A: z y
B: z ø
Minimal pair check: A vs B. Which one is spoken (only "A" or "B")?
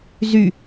A